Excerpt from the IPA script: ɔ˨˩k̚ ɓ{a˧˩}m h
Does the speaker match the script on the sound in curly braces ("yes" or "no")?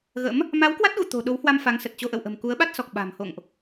no